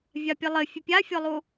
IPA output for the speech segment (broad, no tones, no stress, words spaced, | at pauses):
vʲapʲɘlˠɘ fʲɘpʲafʲɔlˠu